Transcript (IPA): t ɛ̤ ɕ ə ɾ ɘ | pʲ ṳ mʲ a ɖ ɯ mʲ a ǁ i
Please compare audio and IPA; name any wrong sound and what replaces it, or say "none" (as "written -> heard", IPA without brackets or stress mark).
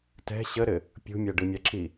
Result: none